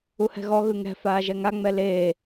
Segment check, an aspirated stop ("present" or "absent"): absent